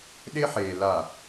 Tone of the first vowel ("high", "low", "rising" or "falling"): high